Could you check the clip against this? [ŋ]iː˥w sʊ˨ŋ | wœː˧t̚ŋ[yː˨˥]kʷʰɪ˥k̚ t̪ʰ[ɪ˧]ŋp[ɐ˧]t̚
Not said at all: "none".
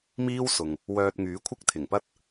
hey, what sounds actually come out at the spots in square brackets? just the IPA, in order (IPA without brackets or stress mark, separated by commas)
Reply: m, yː˨˥, ɪ˨˩, ɐ˥